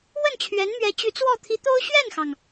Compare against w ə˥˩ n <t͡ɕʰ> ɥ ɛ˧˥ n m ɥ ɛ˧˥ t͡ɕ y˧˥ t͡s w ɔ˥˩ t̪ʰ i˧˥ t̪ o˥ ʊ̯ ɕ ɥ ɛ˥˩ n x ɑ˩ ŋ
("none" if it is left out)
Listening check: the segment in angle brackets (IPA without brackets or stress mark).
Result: t͡ɕʰ